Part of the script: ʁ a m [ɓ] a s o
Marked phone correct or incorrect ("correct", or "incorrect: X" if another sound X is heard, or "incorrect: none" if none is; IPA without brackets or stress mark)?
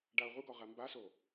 incorrect: b